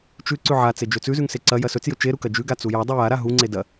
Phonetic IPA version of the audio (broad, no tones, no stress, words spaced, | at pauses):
t͡ʃʉ ǀʉʕat͡se d͡ʒɵt͡sʉzʉŋ seǀɐjɐ sɵt͡sjɵ t͡ʃeɾu kɐd͡ʒʉɡa t͡sujadˤʉ jaɾa ɦuŋ͡ǀe dɐ